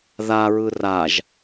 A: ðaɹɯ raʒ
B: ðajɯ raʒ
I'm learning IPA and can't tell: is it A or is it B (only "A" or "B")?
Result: A